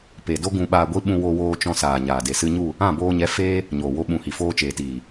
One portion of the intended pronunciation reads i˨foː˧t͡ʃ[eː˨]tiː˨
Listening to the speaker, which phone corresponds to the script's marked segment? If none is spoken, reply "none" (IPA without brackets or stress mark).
eː˨